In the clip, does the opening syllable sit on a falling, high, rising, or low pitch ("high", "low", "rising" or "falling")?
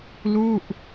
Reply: falling